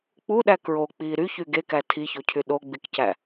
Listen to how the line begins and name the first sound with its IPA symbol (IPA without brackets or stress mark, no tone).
k͡p